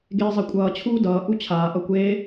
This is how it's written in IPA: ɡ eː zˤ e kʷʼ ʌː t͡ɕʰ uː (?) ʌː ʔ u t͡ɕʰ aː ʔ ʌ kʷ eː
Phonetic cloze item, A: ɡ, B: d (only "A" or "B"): B